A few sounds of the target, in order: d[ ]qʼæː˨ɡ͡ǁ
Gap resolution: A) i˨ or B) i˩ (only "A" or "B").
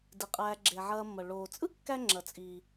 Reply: B